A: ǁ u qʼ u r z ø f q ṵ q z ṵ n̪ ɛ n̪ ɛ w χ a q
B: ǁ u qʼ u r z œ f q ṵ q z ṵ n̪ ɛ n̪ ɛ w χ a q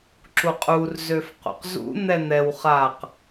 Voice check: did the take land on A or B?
A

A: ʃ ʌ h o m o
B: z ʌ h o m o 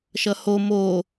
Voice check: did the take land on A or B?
A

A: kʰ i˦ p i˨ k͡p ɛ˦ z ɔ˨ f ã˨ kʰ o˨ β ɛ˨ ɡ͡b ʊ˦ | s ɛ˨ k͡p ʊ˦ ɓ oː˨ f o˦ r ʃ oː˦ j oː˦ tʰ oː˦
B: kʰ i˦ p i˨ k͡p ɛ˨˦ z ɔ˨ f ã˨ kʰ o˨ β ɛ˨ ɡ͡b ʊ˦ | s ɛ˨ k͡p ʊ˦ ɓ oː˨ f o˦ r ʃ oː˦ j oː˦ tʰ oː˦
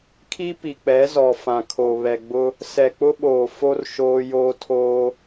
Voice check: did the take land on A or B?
B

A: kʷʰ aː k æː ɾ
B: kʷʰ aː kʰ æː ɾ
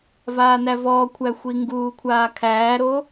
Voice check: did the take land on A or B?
B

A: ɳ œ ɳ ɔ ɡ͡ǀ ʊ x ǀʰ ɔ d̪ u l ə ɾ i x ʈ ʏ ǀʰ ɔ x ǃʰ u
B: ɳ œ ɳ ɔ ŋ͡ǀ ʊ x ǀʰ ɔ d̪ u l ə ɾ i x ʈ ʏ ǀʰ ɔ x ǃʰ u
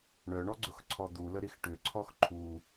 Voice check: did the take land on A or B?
A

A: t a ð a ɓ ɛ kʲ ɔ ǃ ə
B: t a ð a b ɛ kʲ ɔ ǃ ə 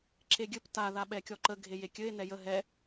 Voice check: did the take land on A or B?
A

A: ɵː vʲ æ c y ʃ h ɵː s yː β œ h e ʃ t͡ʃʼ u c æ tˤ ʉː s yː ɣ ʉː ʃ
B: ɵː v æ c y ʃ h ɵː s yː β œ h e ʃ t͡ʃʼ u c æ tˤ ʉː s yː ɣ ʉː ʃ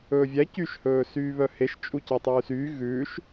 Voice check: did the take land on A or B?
A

